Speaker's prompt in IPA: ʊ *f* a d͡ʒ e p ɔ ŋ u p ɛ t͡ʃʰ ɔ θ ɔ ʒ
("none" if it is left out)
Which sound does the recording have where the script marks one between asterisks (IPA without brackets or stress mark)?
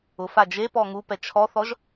f